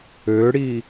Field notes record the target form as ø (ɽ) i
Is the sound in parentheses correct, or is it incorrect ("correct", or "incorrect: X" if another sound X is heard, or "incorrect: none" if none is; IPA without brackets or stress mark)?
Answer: correct